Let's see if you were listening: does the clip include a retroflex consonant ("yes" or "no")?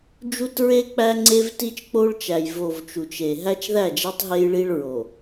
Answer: yes